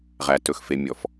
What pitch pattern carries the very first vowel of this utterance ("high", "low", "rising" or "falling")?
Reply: low